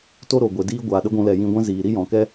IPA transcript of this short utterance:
t o˦ ɾ o˨ ɡʷ e˨ d iː˦ ɡʷ aː˨ ɗ ə˦ ɡʷ ũ˧ l ɛ˨ j ĩ˧ ɡʷ ɛ̃˦ z iː˨ ɾ i˦ j ɔ̃˨ k ɛ˦

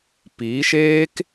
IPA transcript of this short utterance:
p i˨˦ ʃ eː˦ k

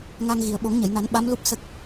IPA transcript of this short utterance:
ŋ a˧ ŋ ɣ i˨˩ ə̯ ɓ o˨˩˦ ŋ ɲ ə˨˩˨ j n a˨˩˦ n ɓ a˧˥ m l u˦˥ p̚ s ə˦˥ k̚

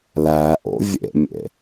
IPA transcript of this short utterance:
l æ ʔ o̰ vʲ ḛ mʲ ḛ

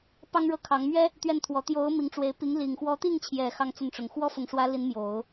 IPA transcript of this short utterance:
p ɑ˥ ŋ ɻ ɤ˥˩ kʰ ɑ˧˥ ŋ m ɥ ɛ˥ | t̪ ɥ ɛ˥˩ n t̪ʰ w ɔ˧˥ t̪ j o˧˥ ʊ̯ m i˧˥ ŋ ʈ͡ʂ w e˧˥ ɪ̯ p i˧˥ ŋ l i˨˩ ŋ x w ɔ˧˥ t̪ i˥˩ ŋ t͡ɕʰ j ɛ˨˩ x ɑ˥˧ ŋ t͡s ə˥˩ n ʈ͡ʂ ʊ˨˩ ŋ x w ɔ˥ f ʊ˨˩ ŋ ʂ w ä˧˥ l i˧˥ n m j o˨˩˦ ʊ̯

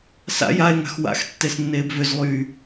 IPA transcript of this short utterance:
s a̰ j a e̯ ŋ a̤ x w a̰ x tː e s nː eː b v ʏ z lˠ yː

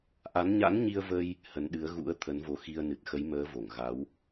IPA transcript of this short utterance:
ʔ a˨˦ n ɲ a̰˧˥ n ɲ i˧ ə̯ v ə˧ j | h ə˨˦ n ɗ ɨ˨˦ ə̯ ɣ ṵ˧˥ ə̯ t̪ʰ ə˨˦ n v o˨˦ x i˧ ə̯ n ɨ˨˩ t̚ x ə˨˦ j m əː˨˦ v o˧˩ ŋ ɣ a˨˦ w

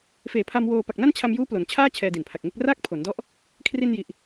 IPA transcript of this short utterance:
f eː˨˩ pʰ a˧ m w oː˧ p a˨˩ k̚ n a˥˩ n t͡ɕʰ a˧ m j uː˦˥ p l o˩˦ n t͡ɕʰ aː˥˩ t͡ɕʰ ɛː˧ d i˨˩ n pʰ a˨˩ k̚ ŋ e˥˩ k̚ r aː˥˩ k̚ pʰ o˩˦ n d ɔ˦˥ ʔ | kʰ r i˧ n j i˨˩ ʔ

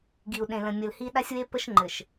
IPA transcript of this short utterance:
ɡ i˨ u̯ ɗ ẽ˨ l ə̃˨ mʲ ə˨ l h i˦ ɗ a˦ sʲ w e˦ p ə˦ ʃ ŋ͡ǃ ɘ˨ ʃ

